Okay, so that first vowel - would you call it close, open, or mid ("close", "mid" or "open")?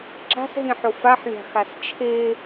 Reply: open